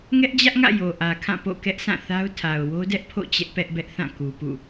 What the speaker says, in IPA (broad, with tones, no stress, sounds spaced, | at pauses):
ŋ ɛ˦ ʔ d͡ʑ ä˦ ʔ ŋ ä̰˦˨ j o˨ ʔ ä˨ kʰ ã˦˨ p o̰˦˨ k ɛ˦ ʔ sʰ ã˦˨ θ a˦ ʊ̯ tʰ a˨ ʊ̯ w o˦ d ɛ˦ ʔ pʰ o̰˦˨ t͡ɕ ɛ˦ ʔ p ɛ˦ ʔ b ɛ˦ ʔ θ ã˦˨ k u˨ p ṵ˦˨